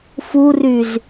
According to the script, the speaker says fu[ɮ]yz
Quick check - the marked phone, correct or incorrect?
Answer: incorrect